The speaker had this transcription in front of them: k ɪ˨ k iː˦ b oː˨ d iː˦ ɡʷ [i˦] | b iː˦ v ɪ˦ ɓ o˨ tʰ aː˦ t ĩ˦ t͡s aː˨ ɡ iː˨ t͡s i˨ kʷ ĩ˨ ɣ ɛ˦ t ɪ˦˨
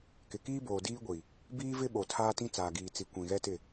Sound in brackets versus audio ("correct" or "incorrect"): incorrect